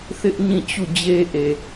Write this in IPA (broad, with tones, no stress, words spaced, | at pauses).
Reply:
θɪ˦ʔ ɲĩ˦˨t͡ɕu˦˨d͡ʑe˦ʔe˨